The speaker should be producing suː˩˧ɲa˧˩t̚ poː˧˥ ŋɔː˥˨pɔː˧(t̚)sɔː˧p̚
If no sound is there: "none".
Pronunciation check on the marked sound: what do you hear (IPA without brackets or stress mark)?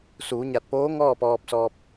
p̚